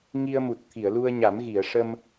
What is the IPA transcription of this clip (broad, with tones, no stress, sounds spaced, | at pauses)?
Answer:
ŋ i˧ ə̯ m u˨˩ t̚ t̪ʰ i˨˩˨ ə̯ l u˧ ə̯ ɲ a˨˩˦ m ɣ i˨˩˨ ə̯ ʂ ə˧ m